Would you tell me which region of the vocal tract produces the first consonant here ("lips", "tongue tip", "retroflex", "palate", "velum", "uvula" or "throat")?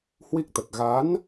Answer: throat